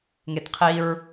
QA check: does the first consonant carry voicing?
yes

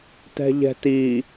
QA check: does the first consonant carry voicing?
no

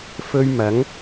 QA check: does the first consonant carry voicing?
no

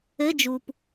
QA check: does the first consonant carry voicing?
yes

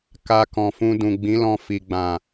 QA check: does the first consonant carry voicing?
no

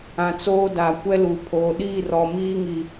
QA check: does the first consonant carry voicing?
no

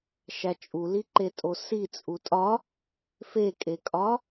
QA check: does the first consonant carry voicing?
no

